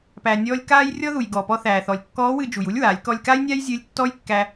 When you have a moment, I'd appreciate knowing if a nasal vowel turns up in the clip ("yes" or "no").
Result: no